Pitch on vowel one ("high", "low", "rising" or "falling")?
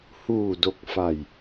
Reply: low